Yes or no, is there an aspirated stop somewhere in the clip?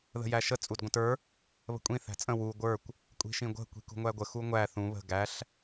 no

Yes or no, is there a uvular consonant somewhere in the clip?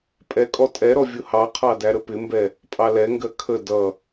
yes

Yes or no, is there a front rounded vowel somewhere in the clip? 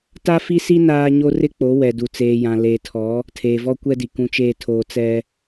no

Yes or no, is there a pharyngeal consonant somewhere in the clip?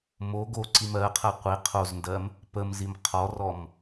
no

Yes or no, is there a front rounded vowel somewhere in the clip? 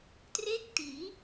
no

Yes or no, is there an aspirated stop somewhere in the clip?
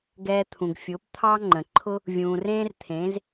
yes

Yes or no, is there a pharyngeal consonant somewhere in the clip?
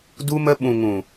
no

